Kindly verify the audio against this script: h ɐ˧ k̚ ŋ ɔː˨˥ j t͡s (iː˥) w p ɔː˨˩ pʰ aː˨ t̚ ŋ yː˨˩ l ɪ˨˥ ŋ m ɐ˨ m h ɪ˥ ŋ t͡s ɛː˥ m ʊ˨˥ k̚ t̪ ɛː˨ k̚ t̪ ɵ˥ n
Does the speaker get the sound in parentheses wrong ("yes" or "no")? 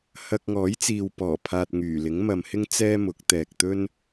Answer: yes